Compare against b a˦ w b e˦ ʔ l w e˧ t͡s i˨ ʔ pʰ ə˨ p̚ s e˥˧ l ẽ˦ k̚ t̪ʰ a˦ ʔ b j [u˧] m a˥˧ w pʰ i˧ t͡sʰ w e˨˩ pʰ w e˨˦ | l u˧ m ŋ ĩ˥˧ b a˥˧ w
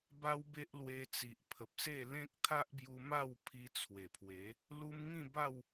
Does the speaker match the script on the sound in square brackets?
yes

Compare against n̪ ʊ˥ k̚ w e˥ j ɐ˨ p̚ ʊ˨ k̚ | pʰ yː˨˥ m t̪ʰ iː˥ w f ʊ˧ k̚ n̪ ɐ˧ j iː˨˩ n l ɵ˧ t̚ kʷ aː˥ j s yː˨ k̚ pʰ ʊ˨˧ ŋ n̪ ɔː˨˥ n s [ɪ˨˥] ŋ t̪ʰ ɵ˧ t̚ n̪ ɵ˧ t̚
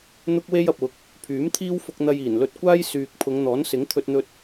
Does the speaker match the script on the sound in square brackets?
yes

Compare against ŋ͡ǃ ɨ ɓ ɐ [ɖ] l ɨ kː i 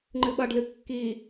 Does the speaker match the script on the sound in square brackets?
yes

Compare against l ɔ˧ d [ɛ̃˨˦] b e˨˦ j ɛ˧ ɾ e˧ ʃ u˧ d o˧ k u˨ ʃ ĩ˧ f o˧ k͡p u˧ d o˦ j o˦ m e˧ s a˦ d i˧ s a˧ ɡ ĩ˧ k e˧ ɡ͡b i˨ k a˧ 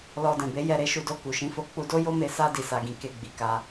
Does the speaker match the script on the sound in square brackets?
no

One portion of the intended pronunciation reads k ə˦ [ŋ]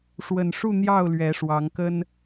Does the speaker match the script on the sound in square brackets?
no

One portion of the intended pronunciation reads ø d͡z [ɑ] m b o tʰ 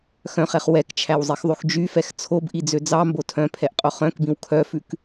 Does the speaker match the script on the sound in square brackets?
yes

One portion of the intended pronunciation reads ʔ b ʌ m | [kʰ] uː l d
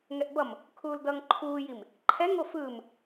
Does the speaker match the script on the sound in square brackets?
yes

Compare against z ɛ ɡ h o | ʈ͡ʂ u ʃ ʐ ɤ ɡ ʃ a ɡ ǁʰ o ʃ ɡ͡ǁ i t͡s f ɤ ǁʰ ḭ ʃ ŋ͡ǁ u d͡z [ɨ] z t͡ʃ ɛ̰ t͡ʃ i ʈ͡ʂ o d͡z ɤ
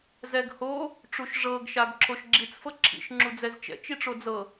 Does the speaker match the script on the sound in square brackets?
no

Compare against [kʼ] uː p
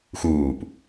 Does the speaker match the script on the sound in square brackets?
no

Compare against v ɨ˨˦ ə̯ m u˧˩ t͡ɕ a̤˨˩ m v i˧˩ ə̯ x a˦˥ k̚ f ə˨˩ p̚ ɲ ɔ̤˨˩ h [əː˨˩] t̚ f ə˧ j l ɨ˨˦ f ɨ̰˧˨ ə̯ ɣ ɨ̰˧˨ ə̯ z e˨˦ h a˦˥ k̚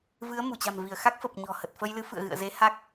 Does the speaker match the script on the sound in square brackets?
no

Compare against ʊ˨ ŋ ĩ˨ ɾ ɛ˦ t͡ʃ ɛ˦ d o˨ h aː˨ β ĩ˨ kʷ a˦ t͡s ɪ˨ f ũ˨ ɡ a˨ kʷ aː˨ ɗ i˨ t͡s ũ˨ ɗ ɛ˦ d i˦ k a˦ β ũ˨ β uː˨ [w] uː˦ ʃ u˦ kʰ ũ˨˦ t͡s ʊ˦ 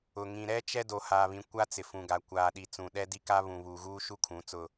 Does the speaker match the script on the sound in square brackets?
no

